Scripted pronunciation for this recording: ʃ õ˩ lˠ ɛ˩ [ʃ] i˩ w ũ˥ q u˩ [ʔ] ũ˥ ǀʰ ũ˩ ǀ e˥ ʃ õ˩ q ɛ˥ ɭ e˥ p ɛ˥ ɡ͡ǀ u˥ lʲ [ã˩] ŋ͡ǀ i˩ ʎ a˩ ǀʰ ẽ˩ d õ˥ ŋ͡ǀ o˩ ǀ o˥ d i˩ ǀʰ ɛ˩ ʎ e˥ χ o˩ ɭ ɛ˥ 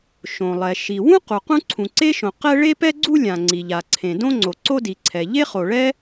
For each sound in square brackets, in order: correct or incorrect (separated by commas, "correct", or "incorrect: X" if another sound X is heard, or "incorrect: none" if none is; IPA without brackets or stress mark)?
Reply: correct, incorrect: q, correct